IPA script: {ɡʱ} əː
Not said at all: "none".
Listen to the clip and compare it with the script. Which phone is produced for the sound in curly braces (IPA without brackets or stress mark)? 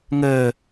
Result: ŋ